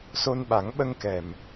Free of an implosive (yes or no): no